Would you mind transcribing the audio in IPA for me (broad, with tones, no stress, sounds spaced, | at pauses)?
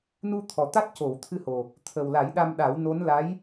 n u˧ t̪ʰ ɔ˨˩ t̪ a˦˥ t̚ c o˨˩˨ w t̪ʰ ɨ˧ h o˨˩ | t̪ʰ ə˨˩ w l a˨˩˦ j ɗ a˧ m ɗ a˨˩˦ w n o˧˥ n l a˧˥ j